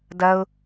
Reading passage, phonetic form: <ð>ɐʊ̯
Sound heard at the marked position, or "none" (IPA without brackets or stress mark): d